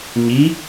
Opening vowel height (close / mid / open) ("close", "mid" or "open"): close